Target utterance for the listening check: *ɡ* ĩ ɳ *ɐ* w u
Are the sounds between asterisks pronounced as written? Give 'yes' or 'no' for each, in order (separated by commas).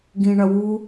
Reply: yes, yes